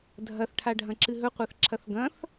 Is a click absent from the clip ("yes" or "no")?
no